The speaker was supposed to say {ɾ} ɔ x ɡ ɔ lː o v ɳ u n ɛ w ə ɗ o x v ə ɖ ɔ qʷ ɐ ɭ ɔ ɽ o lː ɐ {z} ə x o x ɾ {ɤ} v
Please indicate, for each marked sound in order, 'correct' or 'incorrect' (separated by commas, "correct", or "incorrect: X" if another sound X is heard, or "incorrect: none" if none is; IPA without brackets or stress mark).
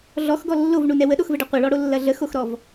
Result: incorrect: ɮ, incorrect: ɮ, incorrect: ɔ